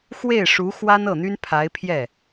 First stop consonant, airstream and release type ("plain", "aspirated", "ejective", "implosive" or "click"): aspirated